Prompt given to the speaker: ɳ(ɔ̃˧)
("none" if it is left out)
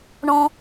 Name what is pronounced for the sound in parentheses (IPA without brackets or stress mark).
ɔ̃˧